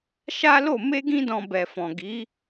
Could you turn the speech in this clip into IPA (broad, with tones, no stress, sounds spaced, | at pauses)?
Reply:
ʃ a˦ l o˦˨ m e˧ ɡ ĩ˧ d ɔ̃˨ b ɛ˨ f ɔ̃˨ ɡ i˨˦